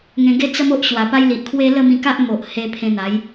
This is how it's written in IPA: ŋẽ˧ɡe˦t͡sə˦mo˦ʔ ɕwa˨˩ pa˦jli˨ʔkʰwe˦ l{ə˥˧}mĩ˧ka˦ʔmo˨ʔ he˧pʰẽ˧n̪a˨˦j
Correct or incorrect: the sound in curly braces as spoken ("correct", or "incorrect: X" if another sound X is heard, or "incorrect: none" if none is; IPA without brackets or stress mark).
correct